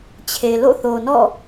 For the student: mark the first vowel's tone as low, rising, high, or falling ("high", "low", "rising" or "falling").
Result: low